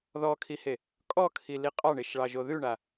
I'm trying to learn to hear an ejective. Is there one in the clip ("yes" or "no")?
yes